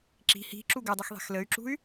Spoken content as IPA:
ǁ i̤ h i̤ ǁ u ɡ ɨ dˤ ɛ x ðˤ e̤ x l ə y̯ ǁ ṳ y̯

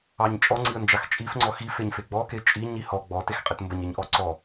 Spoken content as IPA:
ɑ ɲ t͡ʃʼ ɔ ŋ͡ǀ i ə̯ n d͡ʒ ɑ x t͡ʃʼ i f ŋ͡ǀ ɔ x i f e ɲ f e ɡ͡b ɔ k e t͡ʃʼ i ɲ i h ɔ ɡ͡b ɔ t e x qʼ e t m b ə ɲ e ɲ ʔ ɔ ǀ ɔ

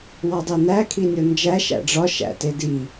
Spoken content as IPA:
w ɒ dˤ e n æ kʰ i nʲ o n d͡ʒ æ ʃ æ̰ ɖ͡ʐ ɒ ʃ æ̰ t e d i

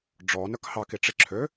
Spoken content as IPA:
ɖ͡ʐ ɔ n œ k h ɑ k i ʈ͡ʂ i ǁʰ ø

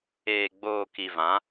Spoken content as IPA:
eː˨ ɡ͡b oː˨ k i˨ v ã˨˦

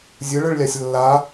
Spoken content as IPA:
zʲ ɯ ɭ ɯ ɭ lʲ a sʲ lː a

